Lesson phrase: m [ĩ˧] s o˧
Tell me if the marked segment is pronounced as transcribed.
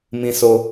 yes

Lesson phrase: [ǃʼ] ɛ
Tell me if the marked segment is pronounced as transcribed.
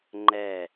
no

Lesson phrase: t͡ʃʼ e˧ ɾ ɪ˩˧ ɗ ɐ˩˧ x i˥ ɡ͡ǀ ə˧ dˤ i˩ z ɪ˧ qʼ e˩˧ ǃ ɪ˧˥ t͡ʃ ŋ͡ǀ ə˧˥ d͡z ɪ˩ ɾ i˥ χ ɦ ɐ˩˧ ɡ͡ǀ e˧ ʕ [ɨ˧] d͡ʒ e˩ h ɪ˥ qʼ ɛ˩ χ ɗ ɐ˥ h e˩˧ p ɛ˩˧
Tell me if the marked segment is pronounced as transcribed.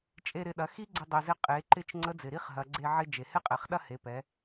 no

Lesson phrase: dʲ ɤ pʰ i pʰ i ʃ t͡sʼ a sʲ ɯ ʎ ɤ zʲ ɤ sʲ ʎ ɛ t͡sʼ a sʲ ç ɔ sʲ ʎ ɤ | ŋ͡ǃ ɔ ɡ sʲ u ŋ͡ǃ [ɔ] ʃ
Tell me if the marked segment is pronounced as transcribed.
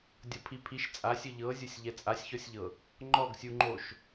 no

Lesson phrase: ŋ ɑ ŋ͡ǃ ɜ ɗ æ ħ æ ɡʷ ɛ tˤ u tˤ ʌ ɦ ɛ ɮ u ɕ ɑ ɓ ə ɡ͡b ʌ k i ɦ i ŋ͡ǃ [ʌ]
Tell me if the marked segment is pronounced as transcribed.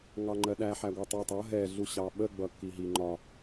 no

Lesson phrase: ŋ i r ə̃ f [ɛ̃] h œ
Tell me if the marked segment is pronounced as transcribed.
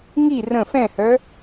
yes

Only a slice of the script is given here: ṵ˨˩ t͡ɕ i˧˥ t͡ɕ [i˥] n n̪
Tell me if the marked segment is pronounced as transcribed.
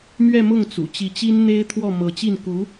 yes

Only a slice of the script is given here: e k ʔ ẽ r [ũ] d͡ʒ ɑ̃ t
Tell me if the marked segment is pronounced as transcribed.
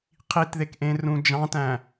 yes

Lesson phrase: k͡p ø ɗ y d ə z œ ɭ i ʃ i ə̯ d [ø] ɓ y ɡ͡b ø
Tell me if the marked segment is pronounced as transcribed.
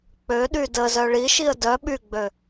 no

